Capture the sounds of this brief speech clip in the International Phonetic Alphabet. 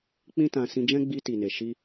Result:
k͡p ĩ˦ t ã˧ s ĩ˧ d͡ʒ ɛ̃˦ ɡ͡b i˧ t i˨ n e˨ ʃ i˧

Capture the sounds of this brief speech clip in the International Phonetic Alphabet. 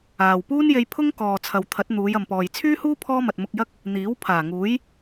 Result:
aː˨ w p uː˥ n j e˧ j pʰ ʊ˥ ŋ k ɔː˨ t͡sʰ ɐ˨ w t̪ʰ ɐ˨˥ t̚ n̪ uː˨˧ j ɐ˨ m p ɔː˨ j t͡sʰ yː˥ h uː˥ pʰ ɔː˥ m ɐ˨ t̚ m ʊ˧ k̚ j ɐ˥ k̚ | n̪ iː˨˥ w pʰ aː˨˩ ŋ uː˨˥ j

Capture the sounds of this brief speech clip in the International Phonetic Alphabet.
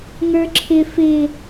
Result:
ŋ ə˞ ǁʰ ɪ f ɪ

